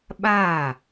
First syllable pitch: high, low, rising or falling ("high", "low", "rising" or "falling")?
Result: falling